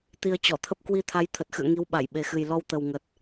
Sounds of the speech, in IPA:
t̪i˧ə̯ t͡ɕɔ˧˩t̪ʰə˦˥p̚ kwi˧t̪ʰa˨˦j t̪ʰə˨˩t̚xɨ̰˧˨ə̯ ŋi˨˦wɓa˧˩jɓe˨˩xɨ˨˩j lɔ˧wt̪ə˨˩wŋə˨˩t̚

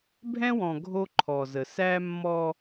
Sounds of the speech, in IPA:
bʱɛ̃˦wɔ̃˨ ɡʱo˦ǃʰɔ˨zə˨ sæ˦mːɔ˦

